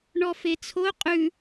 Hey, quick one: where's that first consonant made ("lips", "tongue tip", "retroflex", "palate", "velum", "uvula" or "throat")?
retroflex